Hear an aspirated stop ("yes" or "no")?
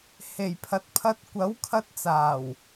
yes